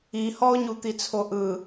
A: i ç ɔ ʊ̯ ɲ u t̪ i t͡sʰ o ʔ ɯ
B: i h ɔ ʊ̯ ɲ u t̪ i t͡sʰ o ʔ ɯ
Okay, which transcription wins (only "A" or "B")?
B